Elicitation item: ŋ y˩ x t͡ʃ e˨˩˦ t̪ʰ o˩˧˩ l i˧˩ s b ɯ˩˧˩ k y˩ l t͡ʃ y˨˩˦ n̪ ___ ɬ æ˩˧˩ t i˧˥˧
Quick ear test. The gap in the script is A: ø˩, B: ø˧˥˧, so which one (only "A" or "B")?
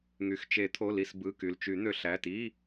A